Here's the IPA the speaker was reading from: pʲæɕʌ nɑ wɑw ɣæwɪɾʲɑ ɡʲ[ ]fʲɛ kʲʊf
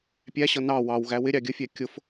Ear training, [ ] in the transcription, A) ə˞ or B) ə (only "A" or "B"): B